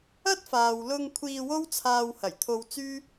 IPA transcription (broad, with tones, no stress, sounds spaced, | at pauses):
ɐ˥ t̚ f aː˨ w l ʊ˧ ŋ kʷʰ iː˧ w o˥ w t͡sʰ aː˧ w h ɐ˨˩ j t̪ʰ o˧ w t͡s yː˥